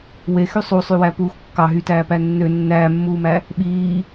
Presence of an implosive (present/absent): present